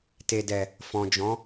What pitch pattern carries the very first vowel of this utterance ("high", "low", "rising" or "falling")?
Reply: low